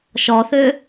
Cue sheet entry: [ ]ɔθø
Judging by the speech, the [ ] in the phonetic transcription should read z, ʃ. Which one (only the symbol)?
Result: ʃ